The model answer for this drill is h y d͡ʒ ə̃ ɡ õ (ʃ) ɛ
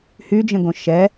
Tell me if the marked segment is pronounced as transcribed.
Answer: yes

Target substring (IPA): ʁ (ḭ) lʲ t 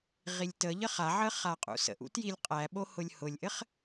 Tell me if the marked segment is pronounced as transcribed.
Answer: no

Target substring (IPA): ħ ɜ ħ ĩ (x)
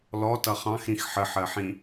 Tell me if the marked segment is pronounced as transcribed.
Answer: no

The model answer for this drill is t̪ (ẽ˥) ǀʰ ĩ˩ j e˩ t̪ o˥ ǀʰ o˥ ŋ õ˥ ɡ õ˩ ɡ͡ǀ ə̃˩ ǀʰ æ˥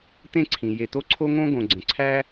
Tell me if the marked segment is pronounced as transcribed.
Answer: yes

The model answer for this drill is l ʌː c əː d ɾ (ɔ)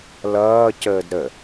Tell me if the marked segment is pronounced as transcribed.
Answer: no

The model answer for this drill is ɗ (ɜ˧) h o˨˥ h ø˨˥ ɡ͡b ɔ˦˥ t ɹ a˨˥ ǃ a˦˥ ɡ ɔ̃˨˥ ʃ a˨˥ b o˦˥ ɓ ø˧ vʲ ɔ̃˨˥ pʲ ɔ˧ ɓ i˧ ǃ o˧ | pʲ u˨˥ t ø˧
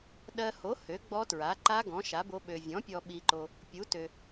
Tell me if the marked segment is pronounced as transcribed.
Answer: yes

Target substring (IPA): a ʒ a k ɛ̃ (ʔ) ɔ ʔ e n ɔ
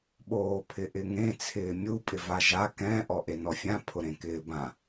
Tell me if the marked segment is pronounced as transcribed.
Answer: yes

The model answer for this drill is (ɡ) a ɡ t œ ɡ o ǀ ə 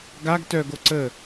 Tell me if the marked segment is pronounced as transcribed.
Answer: yes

